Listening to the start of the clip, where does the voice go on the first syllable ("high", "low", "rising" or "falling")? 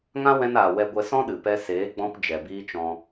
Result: high